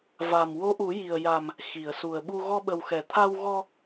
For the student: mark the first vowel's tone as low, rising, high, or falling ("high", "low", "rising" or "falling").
low